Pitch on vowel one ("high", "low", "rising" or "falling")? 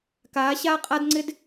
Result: rising